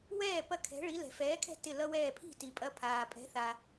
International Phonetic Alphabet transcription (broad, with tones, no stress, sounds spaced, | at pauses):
w ɛː˥˩ p ɐ˥˩ kʰ ɛ̤˩˥ ɭ i˩˥ l ɛ̤˩ f ɛː˩˥ kʰ ɛ̤˥˩ t ɪ˥˩ l ʌ˥ w ɛː˥˩ pʰ i̤˥˩ t i˩ pʼ ɐ˧ pʰ aː˩ pʼ ɛ̤˩˥ θ a˩